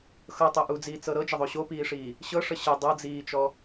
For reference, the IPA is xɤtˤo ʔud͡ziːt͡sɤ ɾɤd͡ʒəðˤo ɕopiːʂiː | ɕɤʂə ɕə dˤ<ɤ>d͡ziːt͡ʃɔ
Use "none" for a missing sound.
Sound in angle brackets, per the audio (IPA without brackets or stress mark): ɤ